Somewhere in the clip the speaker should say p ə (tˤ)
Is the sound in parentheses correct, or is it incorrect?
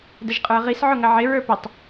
correct